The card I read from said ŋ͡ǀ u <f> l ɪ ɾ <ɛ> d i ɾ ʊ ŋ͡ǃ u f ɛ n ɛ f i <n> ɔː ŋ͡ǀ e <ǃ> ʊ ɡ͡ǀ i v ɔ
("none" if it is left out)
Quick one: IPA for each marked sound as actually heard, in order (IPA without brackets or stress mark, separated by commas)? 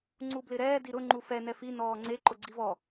b, ɛː, n, ǃ